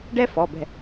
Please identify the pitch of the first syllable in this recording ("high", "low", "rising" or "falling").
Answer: high